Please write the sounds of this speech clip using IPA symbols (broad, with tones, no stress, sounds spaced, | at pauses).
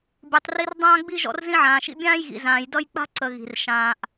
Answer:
bʲ u˨ tˤ r i˦ r dˤ ãː˥ ɡ͡b i˥ ʒ ɔ̰˦ r z ĩ˦ ʕ ãː˨ ʃ ḭ˦ bʲ ãː˥ j ɣ ḭ˨ z ãː˨ j d ʌ˦ j k͡p a̤˥ ǀ ə˨ ɣ i̤˩ r ʃ ãː˨ ʔ